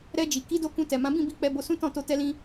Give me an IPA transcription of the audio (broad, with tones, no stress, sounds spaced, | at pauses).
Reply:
ɾ ɛ˧ d͡ʒ i˨ k i˨˦ d o˧ k ũ˧ t ɛ˨ m ã˨˦ b ĩ˦˨ b i˧ k͡p ɛ˧ b o˧ s ũ˦ t ɔ̃˦˨ t o˧ t ɛ˧ l ĩ˧